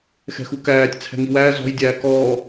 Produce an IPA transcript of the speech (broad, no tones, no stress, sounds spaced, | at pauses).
x ɛ̤ x u k æː tʲ t͡sʰ ɛ̤ ŋ i w æː z ɔ̤ j dʲ æː k ɔː